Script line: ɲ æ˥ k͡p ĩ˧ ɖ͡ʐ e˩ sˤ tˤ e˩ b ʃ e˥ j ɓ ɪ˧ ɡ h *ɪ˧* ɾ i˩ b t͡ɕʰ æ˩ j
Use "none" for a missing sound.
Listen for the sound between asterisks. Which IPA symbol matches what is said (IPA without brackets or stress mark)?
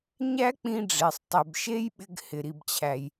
ɪ˩